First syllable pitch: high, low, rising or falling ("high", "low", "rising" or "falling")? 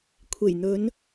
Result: low